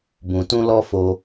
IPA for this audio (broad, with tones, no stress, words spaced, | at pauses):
bũ˨tũ˧lɔ˧ fo˧